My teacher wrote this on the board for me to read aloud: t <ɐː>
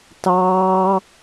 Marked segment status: incorrect: ɑː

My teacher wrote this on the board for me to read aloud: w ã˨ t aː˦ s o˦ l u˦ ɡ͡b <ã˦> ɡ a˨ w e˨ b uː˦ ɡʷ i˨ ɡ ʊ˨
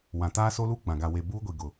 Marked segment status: incorrect: ã˨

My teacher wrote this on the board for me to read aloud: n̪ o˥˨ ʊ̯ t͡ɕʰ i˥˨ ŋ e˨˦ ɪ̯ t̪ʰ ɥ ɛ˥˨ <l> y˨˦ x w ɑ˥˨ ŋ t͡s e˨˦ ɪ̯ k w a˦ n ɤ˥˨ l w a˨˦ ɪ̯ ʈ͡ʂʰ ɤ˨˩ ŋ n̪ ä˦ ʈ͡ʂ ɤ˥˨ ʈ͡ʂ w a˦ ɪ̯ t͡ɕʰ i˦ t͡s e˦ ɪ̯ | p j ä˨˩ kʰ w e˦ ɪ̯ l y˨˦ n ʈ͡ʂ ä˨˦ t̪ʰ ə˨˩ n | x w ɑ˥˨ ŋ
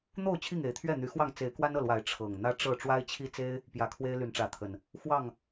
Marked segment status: incorrect: n̪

